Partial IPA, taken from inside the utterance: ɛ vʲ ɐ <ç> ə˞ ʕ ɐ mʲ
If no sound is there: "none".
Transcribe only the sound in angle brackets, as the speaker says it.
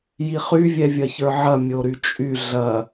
ç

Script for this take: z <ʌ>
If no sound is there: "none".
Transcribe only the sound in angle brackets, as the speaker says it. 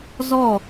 ɔ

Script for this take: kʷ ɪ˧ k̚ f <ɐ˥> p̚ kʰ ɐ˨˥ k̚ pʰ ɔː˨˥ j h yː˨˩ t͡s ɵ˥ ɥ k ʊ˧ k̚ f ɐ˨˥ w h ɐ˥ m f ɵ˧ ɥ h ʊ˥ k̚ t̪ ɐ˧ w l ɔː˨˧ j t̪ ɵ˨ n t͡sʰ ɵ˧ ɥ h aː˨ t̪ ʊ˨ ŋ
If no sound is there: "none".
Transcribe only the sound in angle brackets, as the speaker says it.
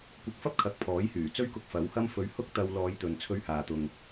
ɐ˥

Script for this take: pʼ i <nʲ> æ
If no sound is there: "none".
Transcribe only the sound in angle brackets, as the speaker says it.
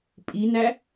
n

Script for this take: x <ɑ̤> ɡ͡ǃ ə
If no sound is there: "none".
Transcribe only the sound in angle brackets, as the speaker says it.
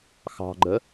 ɑ̤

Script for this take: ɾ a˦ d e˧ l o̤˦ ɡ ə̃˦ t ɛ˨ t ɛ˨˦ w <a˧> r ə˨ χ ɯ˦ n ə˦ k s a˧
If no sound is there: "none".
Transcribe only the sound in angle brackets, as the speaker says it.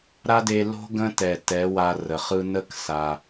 a˧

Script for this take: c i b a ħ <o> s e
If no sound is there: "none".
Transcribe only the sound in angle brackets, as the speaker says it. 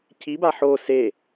o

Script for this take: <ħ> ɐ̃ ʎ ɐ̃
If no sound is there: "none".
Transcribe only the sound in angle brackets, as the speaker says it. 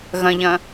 ɣ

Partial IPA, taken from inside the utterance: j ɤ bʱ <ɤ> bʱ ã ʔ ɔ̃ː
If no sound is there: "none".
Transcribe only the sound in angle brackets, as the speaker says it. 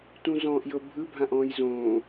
ɯ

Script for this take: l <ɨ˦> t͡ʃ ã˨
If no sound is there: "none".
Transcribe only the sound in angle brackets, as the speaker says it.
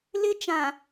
ɪ˦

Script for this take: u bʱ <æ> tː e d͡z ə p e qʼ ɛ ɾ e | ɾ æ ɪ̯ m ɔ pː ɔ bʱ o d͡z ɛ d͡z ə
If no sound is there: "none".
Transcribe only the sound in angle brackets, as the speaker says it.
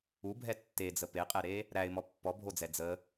ɛ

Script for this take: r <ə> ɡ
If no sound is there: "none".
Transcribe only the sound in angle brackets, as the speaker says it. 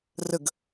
ə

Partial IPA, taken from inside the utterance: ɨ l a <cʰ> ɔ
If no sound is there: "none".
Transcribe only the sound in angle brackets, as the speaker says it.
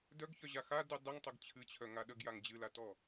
t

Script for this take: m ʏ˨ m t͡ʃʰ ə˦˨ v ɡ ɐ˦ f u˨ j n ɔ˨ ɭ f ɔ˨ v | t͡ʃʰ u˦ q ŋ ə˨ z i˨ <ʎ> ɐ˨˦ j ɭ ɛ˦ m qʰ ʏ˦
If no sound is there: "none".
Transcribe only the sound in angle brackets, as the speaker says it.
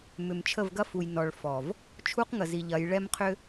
ʎ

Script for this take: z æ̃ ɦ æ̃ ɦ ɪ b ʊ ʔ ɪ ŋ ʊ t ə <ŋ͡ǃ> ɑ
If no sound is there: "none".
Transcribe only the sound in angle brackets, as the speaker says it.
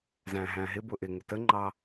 ŋ͡ǃ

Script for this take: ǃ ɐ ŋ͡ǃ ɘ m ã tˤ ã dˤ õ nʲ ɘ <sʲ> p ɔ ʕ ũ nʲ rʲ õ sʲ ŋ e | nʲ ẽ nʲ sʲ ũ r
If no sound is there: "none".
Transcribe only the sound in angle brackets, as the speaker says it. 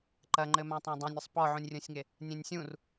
sˤ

